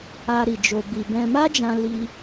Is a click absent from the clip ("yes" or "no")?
yes